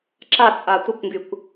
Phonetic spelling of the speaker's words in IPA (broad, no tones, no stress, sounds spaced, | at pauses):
ǁ a t͡sʼ a tʷ ə kʷ ŋ ɡ y kʷ